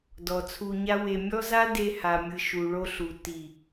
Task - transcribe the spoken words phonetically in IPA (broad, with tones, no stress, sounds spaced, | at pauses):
d ɔ˨ t͡sʰ u˧ ɲ a˦ w e˧ mʲ ɔ˦ z a˦ d e˧ h a˨ mʲ ɯ˨ ʃ u˨ ɭ o˧ ɬ u˨ t i˨